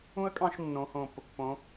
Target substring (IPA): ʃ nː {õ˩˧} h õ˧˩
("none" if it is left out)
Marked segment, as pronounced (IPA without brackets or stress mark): õ˩˧